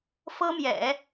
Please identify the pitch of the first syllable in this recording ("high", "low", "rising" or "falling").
high